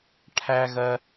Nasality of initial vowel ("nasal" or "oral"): oral